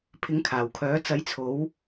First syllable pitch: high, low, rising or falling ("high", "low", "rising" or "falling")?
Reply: rising